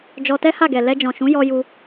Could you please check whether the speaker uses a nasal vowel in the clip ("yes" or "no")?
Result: yes